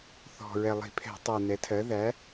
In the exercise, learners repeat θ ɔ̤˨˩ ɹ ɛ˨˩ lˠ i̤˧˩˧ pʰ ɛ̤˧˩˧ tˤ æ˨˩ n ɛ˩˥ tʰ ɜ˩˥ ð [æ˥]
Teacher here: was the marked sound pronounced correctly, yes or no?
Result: no